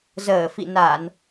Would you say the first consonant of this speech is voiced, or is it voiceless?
voiced